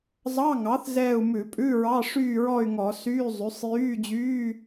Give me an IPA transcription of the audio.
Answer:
zˤɑ˧˥˧ŋɑ˩˥θ zɛː˦˨u̯mʉ˧˩˧pʼʉ˧˥˧ɹɑ˧˥˧ ʂyː˦˨ɹɔ˦˨y̯ ŋɔ˧˩˧syː˧˥˧ zˤy˩˥sˤ jyː˧˥˧d͡ʑyː˧˥˧

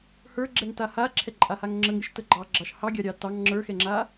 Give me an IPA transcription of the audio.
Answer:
hə˞ɡ͡ǁɛŋta haǁʰɛǃʼahaŋ ŋ͡ǁəŋɾʲəʃtə ɡ͡ǃɑɡ͡ǁɑʃ hɑɡʲɑɾʲɑ tɑŋ ŋ͡ǁə˞xɛŋ͡ǁa

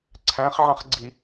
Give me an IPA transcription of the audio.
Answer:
ǀʰæ̃χ ʕɑ̃χɡ͡ǀi

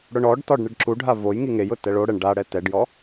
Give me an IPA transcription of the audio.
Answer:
ɽʊɳɔɖtɔɖ ɳɪɖǁuɖʱa voj ŋiŋejʊ tɛɭoɽɛɳ ɖa ɽɛtɛɖjɔ

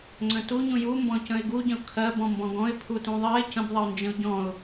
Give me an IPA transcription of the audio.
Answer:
ŋ͡ǀə̃tuɲũ ju mbɔ̃cə̃ɪ̯ɡuɟə̃ʊ̯ kʰɜb ɔ̃mbɔ̃ɡɔ̃ɪ̯ pʰutũðˤɜɪ̯ cə̃bðˤəʊ̯ nd͡ʒə̃ʊ̯ɟɔ̃ʊ̯

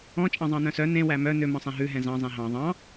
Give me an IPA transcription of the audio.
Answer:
ɔ̃ t͡ʃʼɑ̃zˤɑ̃nœ̃sœ nẽ wæmœ nø mɔ̃sˤɛ̃ɦʉ ɦɛ̃zɑ̃ zˤɛ̃ɦɑ̃ ðˤɑ̃

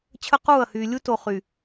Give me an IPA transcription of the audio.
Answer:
t͡ɕʰə˦ quː˦˨ɐ̯hyː˨ lʲu˦to˨ χy˨

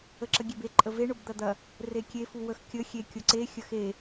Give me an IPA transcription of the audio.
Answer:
əǁəɡʲebe ǃʼəve ɳʊbd̪ɐd̪ɐ | rekʲe fuwəx kʲə xʲe kʲʊǀe xʲəxe

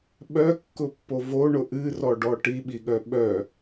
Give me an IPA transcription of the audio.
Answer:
ɓœkːʊpːo vo ɳʊʔɨrɔɖɔ ʈiɓiɠœ ɓœ

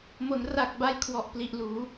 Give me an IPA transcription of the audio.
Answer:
mo˩˦nra˨˩k̚ba˧j kʰwɔ˨˩ʔpli˨˩ʔluː˩˦

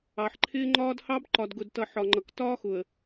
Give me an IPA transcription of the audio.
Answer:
ɑ˨ħǃʰɪː˦ŋ͡ǃɒː˦d hɑ˦b ǃɒ˨dɡʊ˨dtʌ˨ ħɒ˨ŋ͡ǃʌ˨k tɒː˦xʊ˨ə̯

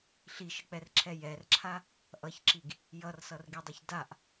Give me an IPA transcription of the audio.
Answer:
ɬiʃək͡pɛrǁʰɛ jɛrǁʰa | ʔʌçǁiɡ | jʌrsʌrɡidˤʊç daʔ

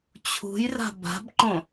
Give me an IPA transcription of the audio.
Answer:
t͡ɕʰṳjra̤ ba̤bǃõ

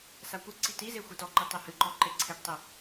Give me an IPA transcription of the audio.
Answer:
sakʷɨǀi tize xʷitɔǃɨ tˤɨhɨǃɔ ǃeǀʰeʈtˤɨ

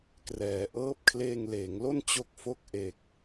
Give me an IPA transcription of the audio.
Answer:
krɛː˩˦ʔɤː˦˥p̚ kʰleː˧ŋleː˩˦ŋlo˥˩n t͡ɕo˥˩k̚fo˥˩k̚ ʔe˨˩k̚

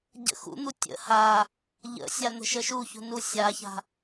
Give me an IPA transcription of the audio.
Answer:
ɟə̰xṵn̪u tʲə̰ ha | ʎə̰sʲa n̪ə̤ʃəʃuçṳ nusʲaça̤

